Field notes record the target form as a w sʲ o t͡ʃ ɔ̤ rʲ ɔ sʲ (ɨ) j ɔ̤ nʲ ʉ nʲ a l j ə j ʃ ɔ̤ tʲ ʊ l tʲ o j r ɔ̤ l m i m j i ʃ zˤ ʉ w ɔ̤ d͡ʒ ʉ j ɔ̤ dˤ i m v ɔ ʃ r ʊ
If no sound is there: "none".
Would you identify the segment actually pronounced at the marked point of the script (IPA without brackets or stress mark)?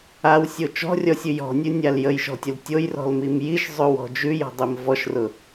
ʉ